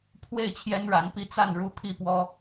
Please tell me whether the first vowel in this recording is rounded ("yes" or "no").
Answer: no